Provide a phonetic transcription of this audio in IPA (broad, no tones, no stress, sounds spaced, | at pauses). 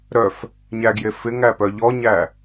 ɾ œ f | ɲ æ ɡ j e f ɪ ŋ æ p œ ʎ ɔ ɲ æ